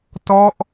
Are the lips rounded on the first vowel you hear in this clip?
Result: yes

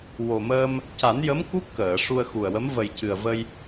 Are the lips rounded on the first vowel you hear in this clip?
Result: yes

